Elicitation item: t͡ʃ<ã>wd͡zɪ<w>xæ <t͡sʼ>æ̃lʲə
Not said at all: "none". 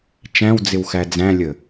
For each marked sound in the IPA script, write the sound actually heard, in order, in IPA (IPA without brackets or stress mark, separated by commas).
æ̃, w, d͡z